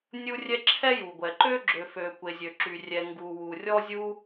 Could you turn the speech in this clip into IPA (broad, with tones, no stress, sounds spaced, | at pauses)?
nʲ u˥ rʲ ɛ˥ ǁʰ ɛ˥ j u˩ ɡʷ ɛ˩ ǃ ø˥ ɡ͡ǁ ø˩ f ø˩ kʷ e˩ zʲ ø˩ ǁ y˩ rʲ ɛ˩ ŋ ɡ u˩ w u˩ rʲ ɔ˥ zʲ u˥